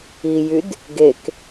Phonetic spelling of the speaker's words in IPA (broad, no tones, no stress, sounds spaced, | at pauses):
i j y d | ɡ e k